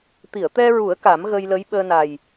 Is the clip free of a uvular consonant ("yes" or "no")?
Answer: yes